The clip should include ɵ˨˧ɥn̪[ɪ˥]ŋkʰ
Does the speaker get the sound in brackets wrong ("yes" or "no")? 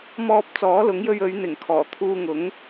yes